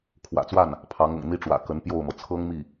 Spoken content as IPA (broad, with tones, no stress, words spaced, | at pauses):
kʰwä̰˨˩t͡swa˥˩n | pʰɑ˧˥ŋʊ̰˨˩ŋn̪i˥ʈ͡ʂwä̰˨˩ kə˧˥npjo˥˩ʊ̯mɤ˩ t͡sʰɤ˥ŋmi˥˩